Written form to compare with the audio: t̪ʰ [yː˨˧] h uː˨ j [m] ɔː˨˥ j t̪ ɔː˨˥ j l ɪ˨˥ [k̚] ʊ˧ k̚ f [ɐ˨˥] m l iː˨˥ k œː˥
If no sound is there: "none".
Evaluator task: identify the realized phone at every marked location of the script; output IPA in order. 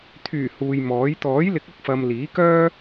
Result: yː˨˩, m, k̚, ɐ˨

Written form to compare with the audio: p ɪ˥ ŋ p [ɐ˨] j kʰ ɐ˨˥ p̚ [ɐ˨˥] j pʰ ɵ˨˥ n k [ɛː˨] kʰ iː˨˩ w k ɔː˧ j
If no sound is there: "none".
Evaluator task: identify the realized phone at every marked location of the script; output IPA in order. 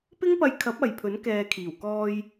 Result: ɐ˧, ɐ˨, ɛː˨

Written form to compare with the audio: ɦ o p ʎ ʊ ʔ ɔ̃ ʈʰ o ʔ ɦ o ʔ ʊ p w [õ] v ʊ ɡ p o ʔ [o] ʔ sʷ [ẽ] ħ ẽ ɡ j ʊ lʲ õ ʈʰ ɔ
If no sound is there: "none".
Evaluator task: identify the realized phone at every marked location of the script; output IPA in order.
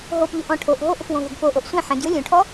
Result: õ, o, ẽ

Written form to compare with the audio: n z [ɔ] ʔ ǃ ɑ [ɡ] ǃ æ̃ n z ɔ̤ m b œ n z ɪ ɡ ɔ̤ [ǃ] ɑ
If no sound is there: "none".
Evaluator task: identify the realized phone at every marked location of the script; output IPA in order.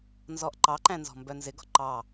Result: ɔ, none, ǃ

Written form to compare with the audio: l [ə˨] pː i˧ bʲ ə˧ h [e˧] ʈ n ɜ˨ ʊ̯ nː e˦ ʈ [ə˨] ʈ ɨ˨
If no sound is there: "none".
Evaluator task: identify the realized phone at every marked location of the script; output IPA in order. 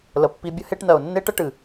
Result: ə˨, e˧, ə˦

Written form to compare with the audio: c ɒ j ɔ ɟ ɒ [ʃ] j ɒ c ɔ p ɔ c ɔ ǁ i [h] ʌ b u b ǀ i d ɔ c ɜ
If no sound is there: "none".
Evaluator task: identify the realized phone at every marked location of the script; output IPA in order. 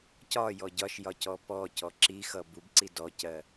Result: ʃ, x

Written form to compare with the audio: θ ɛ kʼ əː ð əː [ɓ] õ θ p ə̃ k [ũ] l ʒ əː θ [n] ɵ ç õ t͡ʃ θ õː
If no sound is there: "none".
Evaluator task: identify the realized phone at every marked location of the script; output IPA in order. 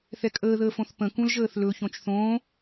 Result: f, ũ, l

